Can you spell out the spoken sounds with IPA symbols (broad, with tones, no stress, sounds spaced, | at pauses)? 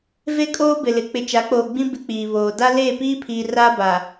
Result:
v e˦ kʼ oː˦ b ɪ˨ l ɪ˨ k͡p ɪ˨ t͡ʃ a˨˦ k͡p oː˨ ɡ͡b ĩ˦ b ɪ˦ k͡p iː˨ β oː˨ d a˦ l eː˦˨ p iː˦ pʰ iː˨ r a˦ b a˨